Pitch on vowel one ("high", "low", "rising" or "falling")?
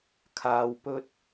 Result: low